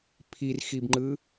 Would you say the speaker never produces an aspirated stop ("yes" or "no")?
no